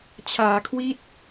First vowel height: low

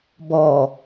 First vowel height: mid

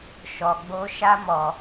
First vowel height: mid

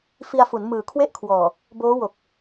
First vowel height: high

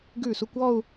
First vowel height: high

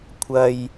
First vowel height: low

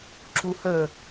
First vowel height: high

